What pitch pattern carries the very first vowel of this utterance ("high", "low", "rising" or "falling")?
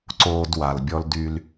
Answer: high